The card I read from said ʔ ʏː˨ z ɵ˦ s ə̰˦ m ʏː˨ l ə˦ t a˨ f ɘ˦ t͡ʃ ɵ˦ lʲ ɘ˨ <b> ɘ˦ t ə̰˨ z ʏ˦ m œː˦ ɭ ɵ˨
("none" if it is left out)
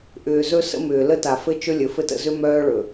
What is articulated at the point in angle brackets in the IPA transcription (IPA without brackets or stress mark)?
f